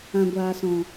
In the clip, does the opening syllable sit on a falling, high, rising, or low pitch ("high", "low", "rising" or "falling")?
low